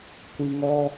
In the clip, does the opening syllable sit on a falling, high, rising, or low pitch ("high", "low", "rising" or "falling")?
low